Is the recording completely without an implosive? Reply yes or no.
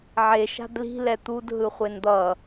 yes